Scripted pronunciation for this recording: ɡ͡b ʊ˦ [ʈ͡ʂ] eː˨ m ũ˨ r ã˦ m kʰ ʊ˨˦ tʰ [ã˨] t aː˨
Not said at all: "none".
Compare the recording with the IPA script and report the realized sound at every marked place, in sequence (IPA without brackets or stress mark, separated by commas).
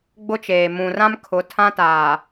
t͡ʃ, ã˦